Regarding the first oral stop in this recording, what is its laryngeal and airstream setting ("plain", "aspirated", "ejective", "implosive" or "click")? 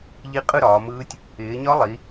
ejective